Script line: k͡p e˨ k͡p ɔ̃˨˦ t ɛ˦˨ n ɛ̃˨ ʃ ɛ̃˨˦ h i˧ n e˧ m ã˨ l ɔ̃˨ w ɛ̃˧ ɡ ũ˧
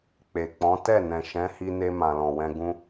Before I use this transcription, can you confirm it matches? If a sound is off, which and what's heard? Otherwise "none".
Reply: none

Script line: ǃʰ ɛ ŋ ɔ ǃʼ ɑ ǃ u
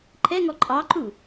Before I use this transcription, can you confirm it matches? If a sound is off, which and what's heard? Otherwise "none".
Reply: none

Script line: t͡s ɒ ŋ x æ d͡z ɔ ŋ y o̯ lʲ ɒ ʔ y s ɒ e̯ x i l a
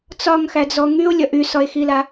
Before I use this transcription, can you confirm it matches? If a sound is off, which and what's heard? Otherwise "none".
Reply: none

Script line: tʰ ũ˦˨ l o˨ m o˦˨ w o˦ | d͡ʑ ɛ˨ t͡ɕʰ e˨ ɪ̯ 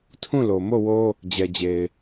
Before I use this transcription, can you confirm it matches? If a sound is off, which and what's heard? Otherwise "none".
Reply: t͡ɕʰ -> d͡ʑ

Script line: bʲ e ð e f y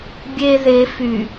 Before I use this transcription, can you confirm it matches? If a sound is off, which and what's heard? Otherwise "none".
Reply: none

